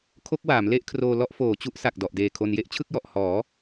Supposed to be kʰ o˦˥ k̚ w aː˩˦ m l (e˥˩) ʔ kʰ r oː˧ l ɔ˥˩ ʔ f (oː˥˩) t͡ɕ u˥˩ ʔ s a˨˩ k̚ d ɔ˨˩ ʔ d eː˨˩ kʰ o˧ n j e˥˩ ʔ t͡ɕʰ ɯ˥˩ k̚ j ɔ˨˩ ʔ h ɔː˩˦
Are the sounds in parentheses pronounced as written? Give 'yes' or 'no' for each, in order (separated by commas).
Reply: yes, no